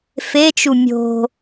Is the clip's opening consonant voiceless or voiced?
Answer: voiceless